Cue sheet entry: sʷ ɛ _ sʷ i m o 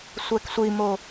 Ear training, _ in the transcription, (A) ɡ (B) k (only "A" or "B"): B